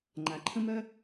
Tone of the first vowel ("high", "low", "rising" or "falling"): low